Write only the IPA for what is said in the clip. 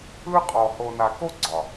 ɯ˦ qʼ ɔ˨ h o˨ n a˨ k o˦ ɡ͡ǀ ɒ˨

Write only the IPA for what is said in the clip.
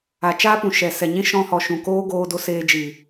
a˨ t͡ʃ aː˦ p ũ˨ ʃ ɛ˨ s ɛ˨ ɲ ĩ˦ ʃ ɔ̃˧ h ɔ˨ ʃ ũ˨ k oː˦ ɡ oː˧ d o˧ s eː˧ d͡ʒ iː˨

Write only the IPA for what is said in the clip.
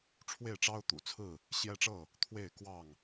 ʈ͡ʂʰ w e˥˨ ɪ̯ ʈ͡ʂ ɑ˦ ʊ̯ t̪ ṵ˨˩ t͡sʰ ɹ̩˥˨ | ɕ j ɛ˦ ʈ͡ʂ ɤ˥˨ | t̪ʰ w e˥˨ ɪ̯ k w ɑ˥˨ ŋ

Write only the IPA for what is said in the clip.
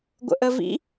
ɡʷ ə̰ ʔ ə v ḭ

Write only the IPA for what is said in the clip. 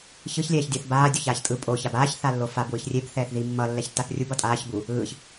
ç ɯ ç lʲ ɛː ç dʲ ʌ θ b aː dʲ o ç aː ç tʼ ɯ pʼ o ç a b aː ç θ a lː o f a b w ɯ ç rʲ e b θ ɛː θ ð i mː ʌ lː ɛ ç tː a θ rʲ u b ʌ tʼ aː ç b u | ɯː ç

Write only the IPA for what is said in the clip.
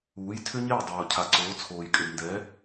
uː˩˥ j tʰ ʏ˥ ɲ e˥˩ j dˤ oː˩ cʰ a˩ ǀ oː˩˥ t͡sʰ oː˩ j kʼ ʏ˩ d n d ɛ˩˥

